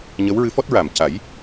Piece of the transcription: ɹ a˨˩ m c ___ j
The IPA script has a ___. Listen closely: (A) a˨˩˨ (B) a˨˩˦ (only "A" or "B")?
B